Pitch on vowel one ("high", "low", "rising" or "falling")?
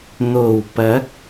low